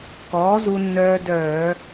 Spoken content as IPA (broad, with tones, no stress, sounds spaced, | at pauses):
k ɔː˩˥ z u˧ nː œː˧ d œː˧˩˧